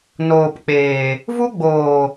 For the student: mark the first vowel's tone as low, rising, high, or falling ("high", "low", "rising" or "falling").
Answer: low